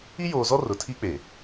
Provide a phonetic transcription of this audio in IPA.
i˦ j oː˨ z ɔ˦ r ʊ˨ tʰ i˦ k͡p e˨

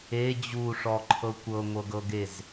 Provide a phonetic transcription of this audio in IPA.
e d͡ʑ u ʂ ɔ ǃʰ ɤ kʷ ɤ ŋʷ ɤ ɡ ɤ ɡ e z

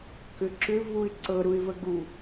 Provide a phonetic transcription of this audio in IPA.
k ʏ ǁ ʏ v u ɪ̯ ǀ ɤ ɾ u ɪ̯ v ə ɡ u

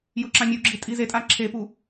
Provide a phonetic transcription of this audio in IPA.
j ʊ ǁ ã mʲ u ɡ͡ǁ i tʼ i z e tʼ a ǁʰ e p u

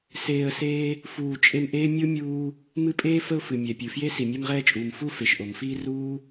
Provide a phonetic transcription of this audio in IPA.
s eː˦ ə̯ s eː˥ | f uː˦ t͡ʃʼ e˦ m ʔ eː˥ mʲ o˥ mʲ uː˦ | m ɨ˦ pʼ eː˥ f ə˦ ʊ̯ f ɨ˩ mʲ ɛ˩ pʲ ɨ˩ f j e˥ s i˩ mʲ ɛ˦ m ʁ ɛː˦ t͡ʃʼ uː˩ m f u˥ f e˩ ʃ ʔ o˩ m f iː˦ r uː˥

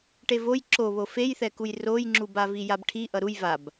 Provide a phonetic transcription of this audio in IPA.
ʈ e v o j ǁ o β o f e j θ ɛ k u j r o j ŋ͡ǁ u b a v i j a b ʈʰ i ʔ ʌ ɾ u j v a b

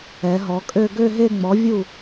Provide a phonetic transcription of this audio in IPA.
ɛ˩˧ ɦ ɔ˩˧ kʼ ø˥˧ ɡ ø˥˧ ɦ e˥˧ ŋ͡m ɔ˩˥ vʲ u˥˩

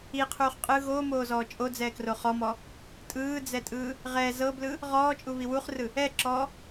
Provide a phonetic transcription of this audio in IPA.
i qʰ uː χ qʼ ɯ ɣ oː m oː z ɔː t͡ʃʼ o d͡z ɛː k r o χ ɔ m ɔ | tʼ ɯː d͡z ɛ tʼ ɯː | ʁ ɛ z ɤ b l ɯ | ʁ ɔː t͡ʃʼ u β i w u χ r ɯ | ɛ ǁ ɔː

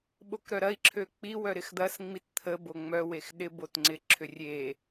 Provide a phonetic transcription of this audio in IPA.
ɓ o k ɾ œ ɾ ɐ i̯ ǁʰ ø k͡p i w œ ɾ ɪ x d̪ ɐ s ŋ͡m i t t̪ʰ ə b o ŋ͡m œ w e x ɗ ɪ b o t ŋ͡ǀ ɪ ǁʰ ʏ rʲ e

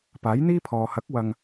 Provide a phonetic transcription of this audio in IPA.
p aː˨˥ j n̪ iː˥ pʰ ɔː˨ h ɐ˨˥ k̚ w ɐ˧ ŋ

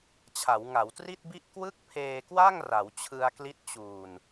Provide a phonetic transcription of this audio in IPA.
t͡ɕʰ a˩˦ w ŋ a˩˦ w t r i˥˩ t̚ b i˥˩ ʔ k w ɯ˥˩ k̚ pʰ eː˧ k w a˥˩ ŋ r a˩˦ w t͡ɕʰ ɯ˧ a̯ k l i˦˥ t̚ t͡ɕ uː˨˩ n

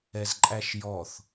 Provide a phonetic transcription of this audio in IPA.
ɛ z ǃʼ æ ʃ j ɔ θ

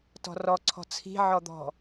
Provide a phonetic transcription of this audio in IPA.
t ɔ̤ r ɔ ǀʰ ɔ̤ t͡sʰ i̤ ʕ ɔ d̪ ɔ̤

